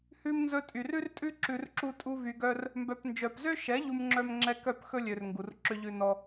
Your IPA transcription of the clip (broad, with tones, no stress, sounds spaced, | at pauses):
h ʉ˧ m n z ɵ˧ tʼ y˨ r ʉ˦ r tʼ ʉ˦ ǁ ʉ˧ r ǁ u˦ tʼ u˦ v y˧ ɡ œ˦ r | m b œ˨ p n d͡ʒ œ˨ p z ø˦ ʃ ɛ˨˦ ʎ u˦ m ŋ͡ǁ œ˦ m ŋ͡ǁ ɛ˦ k œ˦˨ p x ɵ˦ lʲ ø˨ r ŋ ɡ u˨ r ǁ ø˦ ʎ ʉ˦ n ɔ˦